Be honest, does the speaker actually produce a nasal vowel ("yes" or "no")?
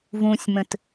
yes